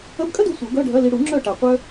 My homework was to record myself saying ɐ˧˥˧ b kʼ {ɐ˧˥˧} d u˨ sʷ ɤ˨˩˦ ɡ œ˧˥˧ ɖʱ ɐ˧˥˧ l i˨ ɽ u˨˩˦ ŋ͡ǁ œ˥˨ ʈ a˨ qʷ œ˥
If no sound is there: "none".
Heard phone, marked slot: ɐ˥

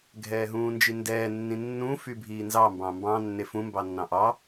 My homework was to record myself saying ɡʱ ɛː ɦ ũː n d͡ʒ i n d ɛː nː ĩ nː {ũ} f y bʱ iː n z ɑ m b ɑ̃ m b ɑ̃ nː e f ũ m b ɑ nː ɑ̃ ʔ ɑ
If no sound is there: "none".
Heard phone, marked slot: ũ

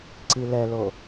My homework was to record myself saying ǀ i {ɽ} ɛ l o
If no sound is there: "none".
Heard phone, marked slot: l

